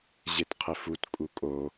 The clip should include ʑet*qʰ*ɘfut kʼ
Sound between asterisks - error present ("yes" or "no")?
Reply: no